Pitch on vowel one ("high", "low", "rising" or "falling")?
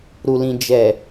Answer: low